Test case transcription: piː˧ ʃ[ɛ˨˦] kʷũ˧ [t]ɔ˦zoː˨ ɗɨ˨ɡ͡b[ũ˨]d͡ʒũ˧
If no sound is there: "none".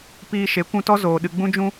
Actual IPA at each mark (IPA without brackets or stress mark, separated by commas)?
e˨˦, t, ũ˧